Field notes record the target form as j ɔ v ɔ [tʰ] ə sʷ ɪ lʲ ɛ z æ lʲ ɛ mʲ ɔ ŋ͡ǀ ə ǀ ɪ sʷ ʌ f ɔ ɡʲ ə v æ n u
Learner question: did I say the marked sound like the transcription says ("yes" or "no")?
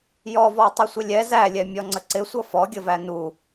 no